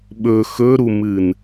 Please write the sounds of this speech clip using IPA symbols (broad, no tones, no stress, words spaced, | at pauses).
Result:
ɓɵ xɵɾumɨn